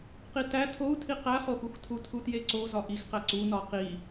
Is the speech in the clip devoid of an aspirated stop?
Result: no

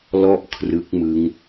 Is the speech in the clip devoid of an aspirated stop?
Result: no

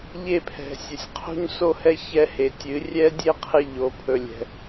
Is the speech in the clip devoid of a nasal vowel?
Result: yes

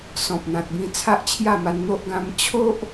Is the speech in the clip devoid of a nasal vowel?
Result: no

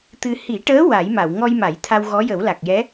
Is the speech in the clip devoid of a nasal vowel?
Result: yes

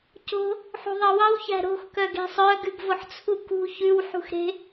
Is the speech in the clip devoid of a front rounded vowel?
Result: no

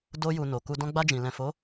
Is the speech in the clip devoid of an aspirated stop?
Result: yes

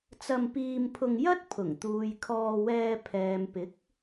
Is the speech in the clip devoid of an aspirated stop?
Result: no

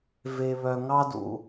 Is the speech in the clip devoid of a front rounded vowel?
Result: no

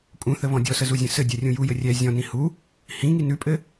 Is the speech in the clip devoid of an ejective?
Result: no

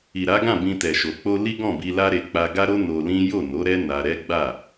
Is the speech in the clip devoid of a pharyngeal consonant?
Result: yes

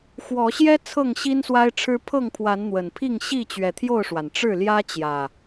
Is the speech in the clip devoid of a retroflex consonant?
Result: no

